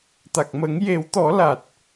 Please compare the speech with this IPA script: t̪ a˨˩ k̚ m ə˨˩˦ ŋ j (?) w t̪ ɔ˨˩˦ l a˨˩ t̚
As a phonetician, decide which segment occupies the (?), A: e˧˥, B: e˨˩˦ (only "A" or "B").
B